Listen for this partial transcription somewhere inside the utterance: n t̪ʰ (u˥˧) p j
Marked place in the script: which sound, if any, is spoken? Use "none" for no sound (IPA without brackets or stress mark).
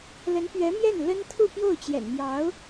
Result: u˥˧